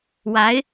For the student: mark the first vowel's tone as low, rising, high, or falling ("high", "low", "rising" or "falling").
rising